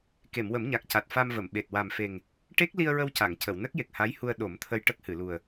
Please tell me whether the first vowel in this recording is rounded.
no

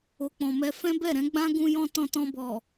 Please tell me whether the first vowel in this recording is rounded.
yes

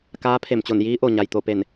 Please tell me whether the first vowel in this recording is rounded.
no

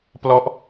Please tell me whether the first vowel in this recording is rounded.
yes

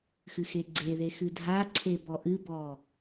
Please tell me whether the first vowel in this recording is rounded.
no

